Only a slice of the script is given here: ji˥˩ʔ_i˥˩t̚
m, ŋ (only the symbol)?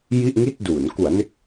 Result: ŋ